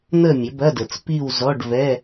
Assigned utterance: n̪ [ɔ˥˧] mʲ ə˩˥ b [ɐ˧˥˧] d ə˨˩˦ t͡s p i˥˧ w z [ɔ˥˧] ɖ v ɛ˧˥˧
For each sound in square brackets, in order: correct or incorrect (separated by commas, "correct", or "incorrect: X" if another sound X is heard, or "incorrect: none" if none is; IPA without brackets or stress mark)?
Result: incorrect: ə˥˧, correct, incorrect: ɔ˧˥˧